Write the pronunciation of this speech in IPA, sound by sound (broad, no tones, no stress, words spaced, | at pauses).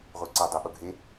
ʁʷiǀʌ dˤoɓoɡʱe